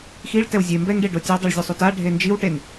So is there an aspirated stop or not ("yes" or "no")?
no